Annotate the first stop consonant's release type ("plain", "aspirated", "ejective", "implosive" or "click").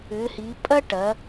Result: ejective